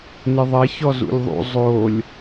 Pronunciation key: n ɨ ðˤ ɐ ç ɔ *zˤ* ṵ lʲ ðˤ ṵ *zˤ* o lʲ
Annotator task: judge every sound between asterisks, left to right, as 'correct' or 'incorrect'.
incorrect: z, correct

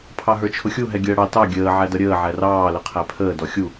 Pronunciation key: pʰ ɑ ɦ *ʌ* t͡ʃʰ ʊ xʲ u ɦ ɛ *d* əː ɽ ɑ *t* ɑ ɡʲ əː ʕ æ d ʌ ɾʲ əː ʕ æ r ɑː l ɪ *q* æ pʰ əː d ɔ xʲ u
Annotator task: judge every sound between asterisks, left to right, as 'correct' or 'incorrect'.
incorrect: ə˞, incorrect: ɡʲ, correct, incorrect: qʰ

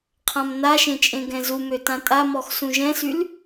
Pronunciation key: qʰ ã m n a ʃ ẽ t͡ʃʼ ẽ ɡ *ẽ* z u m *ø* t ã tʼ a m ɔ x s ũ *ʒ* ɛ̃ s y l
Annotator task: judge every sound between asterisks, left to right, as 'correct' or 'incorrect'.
incorrect: ɛ̃, correct, correct

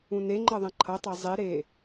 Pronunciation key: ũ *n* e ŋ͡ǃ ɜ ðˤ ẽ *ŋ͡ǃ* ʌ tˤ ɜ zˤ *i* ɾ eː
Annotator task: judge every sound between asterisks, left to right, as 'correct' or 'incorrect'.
correct, incorrect: ǃʰ, correct

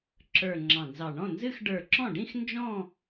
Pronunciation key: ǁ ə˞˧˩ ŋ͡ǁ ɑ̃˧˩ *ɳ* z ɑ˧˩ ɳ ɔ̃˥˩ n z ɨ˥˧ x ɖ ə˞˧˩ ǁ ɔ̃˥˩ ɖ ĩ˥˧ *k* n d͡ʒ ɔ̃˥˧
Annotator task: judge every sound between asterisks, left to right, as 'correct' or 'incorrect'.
incorrect: n, incorrect: x

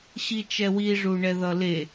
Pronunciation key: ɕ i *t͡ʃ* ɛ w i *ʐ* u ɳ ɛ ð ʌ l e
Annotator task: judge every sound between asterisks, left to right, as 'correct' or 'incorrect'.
correct, correct

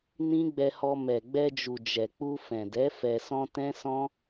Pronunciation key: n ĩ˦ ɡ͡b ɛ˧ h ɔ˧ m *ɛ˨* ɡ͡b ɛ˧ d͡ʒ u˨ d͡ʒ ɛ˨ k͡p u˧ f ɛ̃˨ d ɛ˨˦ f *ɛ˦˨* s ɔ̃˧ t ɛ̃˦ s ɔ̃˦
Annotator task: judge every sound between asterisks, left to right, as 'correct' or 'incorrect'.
correct, incorrect: ɛ˧

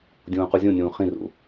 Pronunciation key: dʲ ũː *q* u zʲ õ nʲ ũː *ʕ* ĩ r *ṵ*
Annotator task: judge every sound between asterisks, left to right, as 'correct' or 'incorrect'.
correct, incorrect: χ, correct

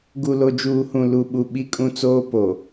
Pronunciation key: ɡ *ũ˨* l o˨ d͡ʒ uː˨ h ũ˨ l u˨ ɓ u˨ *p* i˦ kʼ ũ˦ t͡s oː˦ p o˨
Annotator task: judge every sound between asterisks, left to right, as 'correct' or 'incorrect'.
incorrect: u˨, incorrect: ɓ

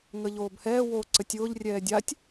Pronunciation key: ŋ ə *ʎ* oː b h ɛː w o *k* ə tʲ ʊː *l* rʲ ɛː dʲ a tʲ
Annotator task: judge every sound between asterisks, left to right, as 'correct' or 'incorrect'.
correct, incorrect: ǀ, incorrect: ʎ

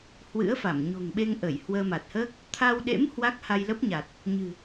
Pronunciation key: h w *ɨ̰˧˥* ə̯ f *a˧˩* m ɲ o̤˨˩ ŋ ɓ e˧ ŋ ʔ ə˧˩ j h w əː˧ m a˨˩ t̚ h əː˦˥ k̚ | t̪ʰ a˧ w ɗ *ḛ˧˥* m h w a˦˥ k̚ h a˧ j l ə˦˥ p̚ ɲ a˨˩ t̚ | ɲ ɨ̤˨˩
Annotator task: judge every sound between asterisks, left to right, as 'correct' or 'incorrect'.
correct, correct, correct

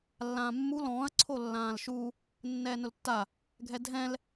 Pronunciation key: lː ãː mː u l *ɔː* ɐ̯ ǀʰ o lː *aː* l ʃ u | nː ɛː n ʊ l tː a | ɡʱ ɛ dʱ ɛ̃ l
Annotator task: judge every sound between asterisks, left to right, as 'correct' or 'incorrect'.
incorrect: ɔ̃ː, incorrect: ãː

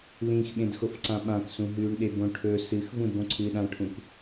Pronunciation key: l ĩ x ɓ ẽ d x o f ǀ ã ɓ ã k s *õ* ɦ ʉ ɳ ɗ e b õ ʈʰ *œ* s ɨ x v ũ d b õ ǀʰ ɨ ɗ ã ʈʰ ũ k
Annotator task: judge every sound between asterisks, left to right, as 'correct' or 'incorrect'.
incorrect: ũ, incorrect: ɵ

